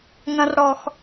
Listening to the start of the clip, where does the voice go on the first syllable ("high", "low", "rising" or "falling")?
high